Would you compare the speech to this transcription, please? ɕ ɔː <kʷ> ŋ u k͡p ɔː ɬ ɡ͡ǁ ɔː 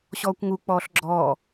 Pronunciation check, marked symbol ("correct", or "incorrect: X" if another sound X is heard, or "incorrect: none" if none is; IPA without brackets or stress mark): correct